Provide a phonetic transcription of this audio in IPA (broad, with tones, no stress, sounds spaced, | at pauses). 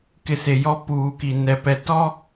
k ɪ˨ s e˨ j ɔ˦ p uː˨ k i˨ n ɛ˨ p ɛ˨ t ɔ˦